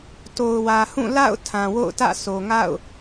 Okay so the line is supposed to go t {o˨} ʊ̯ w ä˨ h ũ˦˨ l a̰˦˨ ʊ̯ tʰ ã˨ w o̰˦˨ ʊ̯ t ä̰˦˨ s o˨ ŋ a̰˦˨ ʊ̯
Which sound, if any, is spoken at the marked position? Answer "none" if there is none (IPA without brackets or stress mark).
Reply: o˨